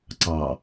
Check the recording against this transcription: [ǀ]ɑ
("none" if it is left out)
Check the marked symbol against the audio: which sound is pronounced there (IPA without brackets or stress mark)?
ǀ